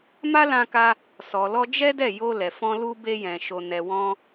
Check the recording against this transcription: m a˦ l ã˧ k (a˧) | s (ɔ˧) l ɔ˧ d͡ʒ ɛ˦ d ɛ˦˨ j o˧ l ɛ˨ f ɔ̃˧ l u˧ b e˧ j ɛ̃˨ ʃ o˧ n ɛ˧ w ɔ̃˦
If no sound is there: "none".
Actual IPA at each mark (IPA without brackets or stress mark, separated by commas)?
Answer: a˧, ɔ˨